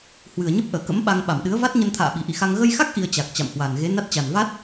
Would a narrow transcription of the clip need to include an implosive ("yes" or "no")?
yes